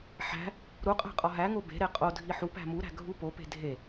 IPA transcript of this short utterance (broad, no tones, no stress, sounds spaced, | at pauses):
ħ æ̤ | ɾ u qʼ æ̤ qʼ ɒ ɦ æ ŋ o b e̤ ɾ e qʼ o dʱ i ħ u p æ̤ m u ɾ æ̤ ɡʱ u p o p e̤ dʱ e